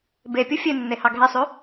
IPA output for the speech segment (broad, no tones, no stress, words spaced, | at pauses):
bepʲu fʲenːe hɑɡʱesˤʉ